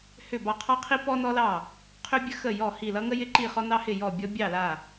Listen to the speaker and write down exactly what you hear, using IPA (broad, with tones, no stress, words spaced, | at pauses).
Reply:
hʏ˥˩ bɑ˥˩qʰɑ˥qʰi˥ pɔ˥nɔ˥lɑ˥˩ | qʰʏ˥bʲə˥ xə˥˩jɔ˥˩ hi˥˩ lʌ˥ŋə˥ jɪ˥ǃi˥˩χɔ˥nɑ˥ hɪ˥˩jɔ˥˩bʲɔ˥ bʲɑ˥˩la˥˩